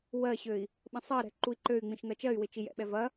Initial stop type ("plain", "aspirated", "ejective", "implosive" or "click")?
implosive